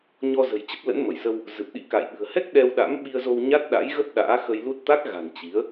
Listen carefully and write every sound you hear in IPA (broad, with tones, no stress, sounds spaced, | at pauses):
ɲ ɔ˧ z ə̤˨˩ j t͡ɕ ə˦˥ p̚ l ə̰˧˥ n m ə˧˩ j s ə˧ w | z ɨ˨˩ p̚ ɗ ḭ˧˥ k a̰˧˨ j ɓ ɨ̤˨˩ ə̯ h ɛ˦˥ k̚ ɗ ɛ˧ w ɗ a̰˧˥ m ɓ i˧ ə̯ z o˧ w ɲ a˦˥ t̚ ɗ a̰˧˥ j ɣ ə˦˥ p̚ ɗ a̰ː˧˥ x ə˧ j l u˦˥ t̚ t̪ a˦˥ k̚ ɣ a̤˨˩ n t͡ɕ i˨˦ ə̯